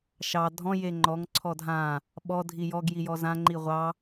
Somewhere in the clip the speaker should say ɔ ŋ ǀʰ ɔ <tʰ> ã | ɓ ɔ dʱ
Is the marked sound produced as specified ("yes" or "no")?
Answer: no